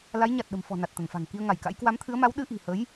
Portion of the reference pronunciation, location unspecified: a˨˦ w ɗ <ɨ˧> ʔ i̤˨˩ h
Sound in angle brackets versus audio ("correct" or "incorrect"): correct